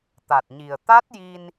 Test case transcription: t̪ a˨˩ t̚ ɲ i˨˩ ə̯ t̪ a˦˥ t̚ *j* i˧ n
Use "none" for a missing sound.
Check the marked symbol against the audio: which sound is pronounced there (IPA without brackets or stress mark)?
j